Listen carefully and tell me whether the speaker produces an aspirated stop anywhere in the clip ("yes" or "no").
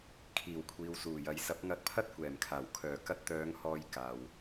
yes